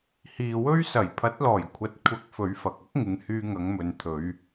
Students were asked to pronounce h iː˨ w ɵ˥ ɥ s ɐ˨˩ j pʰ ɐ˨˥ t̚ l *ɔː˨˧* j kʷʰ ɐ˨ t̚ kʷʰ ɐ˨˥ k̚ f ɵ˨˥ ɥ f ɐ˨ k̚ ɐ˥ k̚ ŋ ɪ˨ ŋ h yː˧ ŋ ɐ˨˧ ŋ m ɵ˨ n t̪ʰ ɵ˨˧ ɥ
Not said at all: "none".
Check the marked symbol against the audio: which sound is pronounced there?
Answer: ɔː˨˩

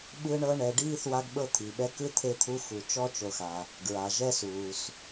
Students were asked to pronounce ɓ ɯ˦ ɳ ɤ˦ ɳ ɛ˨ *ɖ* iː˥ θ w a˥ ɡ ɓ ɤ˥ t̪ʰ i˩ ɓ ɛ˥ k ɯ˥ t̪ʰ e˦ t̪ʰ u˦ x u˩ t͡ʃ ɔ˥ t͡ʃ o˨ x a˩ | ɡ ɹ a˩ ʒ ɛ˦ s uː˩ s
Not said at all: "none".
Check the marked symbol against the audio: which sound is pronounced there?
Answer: ɖ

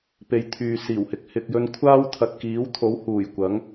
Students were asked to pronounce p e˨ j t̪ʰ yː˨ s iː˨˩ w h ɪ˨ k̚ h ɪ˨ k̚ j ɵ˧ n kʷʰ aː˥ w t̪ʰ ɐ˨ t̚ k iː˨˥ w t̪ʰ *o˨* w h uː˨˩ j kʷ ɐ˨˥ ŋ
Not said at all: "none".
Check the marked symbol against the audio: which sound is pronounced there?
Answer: o˨˥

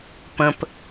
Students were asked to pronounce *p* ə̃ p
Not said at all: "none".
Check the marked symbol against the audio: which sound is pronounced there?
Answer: p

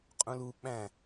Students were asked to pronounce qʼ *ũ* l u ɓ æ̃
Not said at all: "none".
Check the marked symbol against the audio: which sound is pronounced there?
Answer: ũ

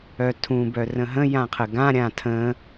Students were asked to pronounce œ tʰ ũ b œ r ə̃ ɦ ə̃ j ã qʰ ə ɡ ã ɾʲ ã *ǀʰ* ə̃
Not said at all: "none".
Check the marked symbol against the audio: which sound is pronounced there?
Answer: tʰ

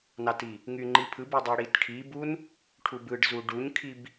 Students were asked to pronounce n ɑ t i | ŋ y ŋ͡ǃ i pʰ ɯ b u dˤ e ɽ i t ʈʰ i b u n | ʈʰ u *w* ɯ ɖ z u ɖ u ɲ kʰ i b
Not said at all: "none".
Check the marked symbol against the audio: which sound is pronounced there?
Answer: b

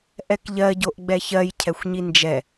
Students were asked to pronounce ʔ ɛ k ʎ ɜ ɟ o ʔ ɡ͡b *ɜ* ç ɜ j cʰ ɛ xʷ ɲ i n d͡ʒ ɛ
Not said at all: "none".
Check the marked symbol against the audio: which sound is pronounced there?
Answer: ɛ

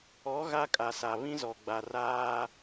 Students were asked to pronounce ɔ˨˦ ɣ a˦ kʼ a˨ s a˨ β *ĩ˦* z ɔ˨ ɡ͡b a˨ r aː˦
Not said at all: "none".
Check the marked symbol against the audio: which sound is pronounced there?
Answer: ĩ˦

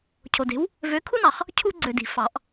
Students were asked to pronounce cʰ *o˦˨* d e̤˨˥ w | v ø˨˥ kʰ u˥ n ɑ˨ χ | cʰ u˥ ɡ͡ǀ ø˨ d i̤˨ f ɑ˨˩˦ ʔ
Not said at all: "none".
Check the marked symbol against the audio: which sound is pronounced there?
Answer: o˨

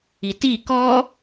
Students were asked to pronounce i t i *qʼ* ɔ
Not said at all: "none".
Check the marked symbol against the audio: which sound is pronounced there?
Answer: k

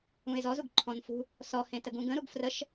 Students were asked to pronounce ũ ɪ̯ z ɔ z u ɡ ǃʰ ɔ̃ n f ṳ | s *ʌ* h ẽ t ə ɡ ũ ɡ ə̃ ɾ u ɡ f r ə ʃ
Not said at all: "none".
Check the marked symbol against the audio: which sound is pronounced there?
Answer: ɔ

